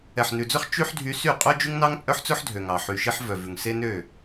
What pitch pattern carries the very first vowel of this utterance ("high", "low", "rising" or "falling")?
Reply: low